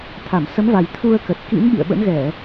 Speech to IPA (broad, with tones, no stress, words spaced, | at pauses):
t̪ʰa˧˩msə˨˦mva˨˩j t̪ʰu˧ə̯kə˨˩t̚kḭ˧˥nɓḭ˧˨ə̯ ɓə̰˧˥nɣɛ˧˩˨